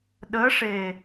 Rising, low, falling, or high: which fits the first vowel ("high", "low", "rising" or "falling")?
rising